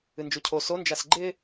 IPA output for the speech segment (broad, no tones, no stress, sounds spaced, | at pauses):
ɨ n d͡ʒ u cʰ o s o n d͡ʒ a s ɡ͡ǃ ɪ